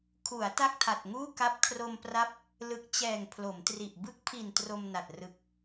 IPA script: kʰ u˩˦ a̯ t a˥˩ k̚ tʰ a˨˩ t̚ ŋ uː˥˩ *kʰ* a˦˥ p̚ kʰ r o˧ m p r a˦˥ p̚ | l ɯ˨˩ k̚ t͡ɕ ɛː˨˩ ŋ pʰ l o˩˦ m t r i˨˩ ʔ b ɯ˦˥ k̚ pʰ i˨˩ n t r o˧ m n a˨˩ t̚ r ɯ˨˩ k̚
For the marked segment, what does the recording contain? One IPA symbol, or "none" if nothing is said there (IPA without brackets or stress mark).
k